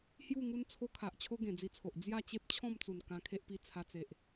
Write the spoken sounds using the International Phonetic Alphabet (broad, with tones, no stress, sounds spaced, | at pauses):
h j u˥˧ ŋ u˦ n t͡sʰ o˦ kʰ a˨ ʔ t͡ɕʰ o˦ ɡ ẽ˨˩ d͡z i˧ t͡sʰ o˨ ʔ d͡z j a˥˧ t͡ɕ e˦ p̚ t͡ɕʰ ɔ̃˥˧ m t͡s u˨˩ n k ã˧ kʰ e˦ ʔ p i˧ t͡sʰ a˧ t͡s e˨ ʔ